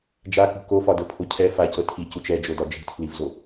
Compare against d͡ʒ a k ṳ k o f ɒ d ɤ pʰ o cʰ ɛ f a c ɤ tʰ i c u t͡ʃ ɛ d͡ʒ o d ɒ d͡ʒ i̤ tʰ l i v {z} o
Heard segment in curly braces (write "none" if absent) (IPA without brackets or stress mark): z